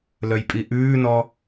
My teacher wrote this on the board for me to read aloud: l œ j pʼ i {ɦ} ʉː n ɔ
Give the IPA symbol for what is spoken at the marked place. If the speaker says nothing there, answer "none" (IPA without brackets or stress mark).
ʔ